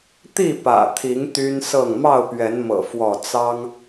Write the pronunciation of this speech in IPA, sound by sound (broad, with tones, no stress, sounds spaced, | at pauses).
t̪ i˥˨ p ä̰˨˩ t̪ʰ i˨˦ ŋ t̪ y˦ n s ɤ˥˨ ŋ m ɑ˥˨ ʊ̯ p ɥ ɛ˨˦ n m ɤ̰˨˩ f w ɔ˥˨ t͡s ɑ˦ ŋ